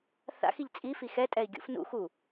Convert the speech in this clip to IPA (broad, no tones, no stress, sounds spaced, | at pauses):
θ a̰ x i ʎ t͡sʼ i f i x ɛ tʼ ɛ i̯ ɡʲ ṵ f n ṵ x u